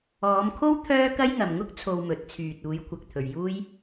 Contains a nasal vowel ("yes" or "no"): no